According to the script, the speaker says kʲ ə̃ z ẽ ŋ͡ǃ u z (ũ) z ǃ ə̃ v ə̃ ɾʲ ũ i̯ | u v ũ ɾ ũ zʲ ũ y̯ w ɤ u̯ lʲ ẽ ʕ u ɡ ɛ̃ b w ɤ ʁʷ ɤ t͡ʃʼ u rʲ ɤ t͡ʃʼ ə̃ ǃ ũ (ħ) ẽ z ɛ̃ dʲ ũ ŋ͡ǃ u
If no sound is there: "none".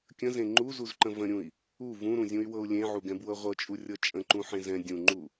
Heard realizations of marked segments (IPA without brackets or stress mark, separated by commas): u, ħ